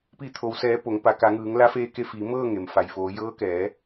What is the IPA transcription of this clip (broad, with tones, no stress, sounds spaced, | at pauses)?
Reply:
p i˧˩ t̪ʰ o˩ w s ɛː˩˧ p o˩˧ ŋ p a˩˧ k a˩˧ ŋ ɯː˩˧ ŋ l a˧˥ f eː˧ k e˧ f iː˩˧ m ɤː˥˨ ŋ e˩ m f a˩ j f oː˩˧ j ɤː˧˥ k ɛː˩˧